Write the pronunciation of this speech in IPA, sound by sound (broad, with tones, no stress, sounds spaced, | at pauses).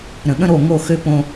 ɾ ə̃˨ ɠ ə̃˦ ɾ o˦˨ ŋ o˦˨ x ø˦ p õ˦